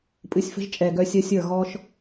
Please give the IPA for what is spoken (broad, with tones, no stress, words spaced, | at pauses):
pʼɨ˨˦sʲfə̤˦ʒt͡ʃʼɛː˨ɡœ˧ sʲə˧ sʲə˞˦˨ɣɔː˦ʃ